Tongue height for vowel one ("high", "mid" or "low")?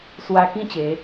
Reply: low